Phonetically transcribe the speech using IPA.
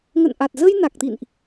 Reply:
ŋ ə̰˧˨ n ʔ a˨˩ t̚ z ə˧ j n a˨˩ k̚ t̪ ḭ˧˨ n ʔ

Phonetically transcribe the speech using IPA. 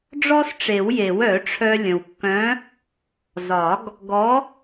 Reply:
ɖ͡ʐ ɔ˥ s ʈ͡ʂ e˨˩˦ w j e˨˩˦ w œ˨˩˦ ʈ͡ʂʰ œ˧ lʲ ə̃˩ w kː œ̃˨˥ | z ɒ˨˩˦ ɡ | ɡ ɔ˨˥

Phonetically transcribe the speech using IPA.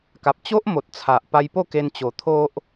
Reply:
k a˨ p̚ t͡ɕ o˦ ʔ m o˨ t̚ t͡sʰ a˨ ʔ p a˧ j p o˥˧ k e˧ n t͡ɕ o˧ t̪ʰ o˦ ʔ

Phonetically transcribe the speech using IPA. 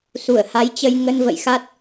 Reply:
s u˧˩ ə̯ h a˨˦ j t͡ɕ ə˧ j ŋ ə˧ n v ə̰˧˨ j x a˦˥ t̚

